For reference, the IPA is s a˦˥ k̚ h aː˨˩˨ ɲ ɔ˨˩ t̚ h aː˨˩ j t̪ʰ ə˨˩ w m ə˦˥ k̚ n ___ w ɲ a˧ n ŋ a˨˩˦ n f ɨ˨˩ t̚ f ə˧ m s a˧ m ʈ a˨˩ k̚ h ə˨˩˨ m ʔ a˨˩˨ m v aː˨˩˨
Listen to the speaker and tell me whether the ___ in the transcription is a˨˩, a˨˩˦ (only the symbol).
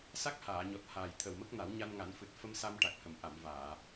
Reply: a˨˩˦